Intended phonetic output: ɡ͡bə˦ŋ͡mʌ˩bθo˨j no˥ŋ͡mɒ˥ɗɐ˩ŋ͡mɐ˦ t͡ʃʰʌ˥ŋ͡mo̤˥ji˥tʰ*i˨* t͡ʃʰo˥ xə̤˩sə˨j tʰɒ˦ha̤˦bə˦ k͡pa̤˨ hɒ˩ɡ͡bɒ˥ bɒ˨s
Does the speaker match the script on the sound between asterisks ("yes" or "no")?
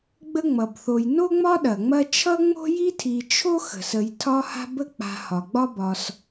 yes